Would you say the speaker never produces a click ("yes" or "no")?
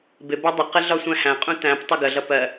yes